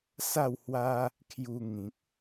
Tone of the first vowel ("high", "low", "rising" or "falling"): falling